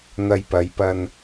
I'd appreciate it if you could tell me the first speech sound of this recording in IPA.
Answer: n̪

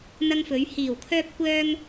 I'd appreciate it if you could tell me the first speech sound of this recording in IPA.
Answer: n̪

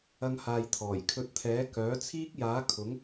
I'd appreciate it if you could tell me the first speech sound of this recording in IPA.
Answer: ɐ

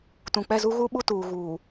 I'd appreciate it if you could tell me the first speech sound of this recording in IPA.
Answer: t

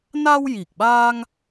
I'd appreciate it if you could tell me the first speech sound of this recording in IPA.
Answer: n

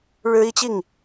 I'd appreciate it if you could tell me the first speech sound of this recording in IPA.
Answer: ɻ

